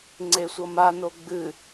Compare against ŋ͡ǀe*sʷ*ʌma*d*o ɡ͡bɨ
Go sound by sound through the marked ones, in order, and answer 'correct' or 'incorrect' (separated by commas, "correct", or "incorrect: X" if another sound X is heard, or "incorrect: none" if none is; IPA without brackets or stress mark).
correct, incorrect: n